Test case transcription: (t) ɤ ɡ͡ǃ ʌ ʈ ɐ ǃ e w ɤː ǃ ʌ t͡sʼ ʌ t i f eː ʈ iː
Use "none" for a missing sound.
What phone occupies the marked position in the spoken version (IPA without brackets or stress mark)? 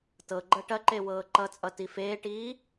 t